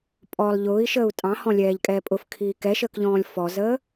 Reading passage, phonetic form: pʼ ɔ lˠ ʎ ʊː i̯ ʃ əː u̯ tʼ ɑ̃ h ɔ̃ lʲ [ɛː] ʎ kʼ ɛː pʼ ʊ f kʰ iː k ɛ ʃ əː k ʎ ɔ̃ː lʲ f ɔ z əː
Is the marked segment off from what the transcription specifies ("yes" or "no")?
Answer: no